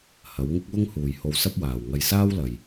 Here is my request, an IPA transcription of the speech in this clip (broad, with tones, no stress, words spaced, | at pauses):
hɐ˨˧wŋɪ˥k̚wʊ˥ŋ huː˨jho˧wsɐ˥p̚waː˨w ŋɐ˧jsaː˥wlɐ˨j